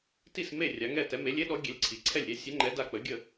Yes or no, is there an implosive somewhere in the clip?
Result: yes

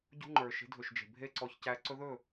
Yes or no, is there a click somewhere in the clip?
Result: yes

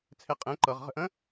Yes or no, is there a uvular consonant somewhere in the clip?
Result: yes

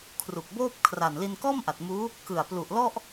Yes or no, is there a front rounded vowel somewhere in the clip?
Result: no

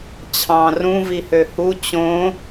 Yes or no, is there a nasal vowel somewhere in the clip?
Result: yes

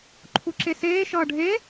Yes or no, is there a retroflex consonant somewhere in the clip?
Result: yes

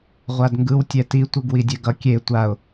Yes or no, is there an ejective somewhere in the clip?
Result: no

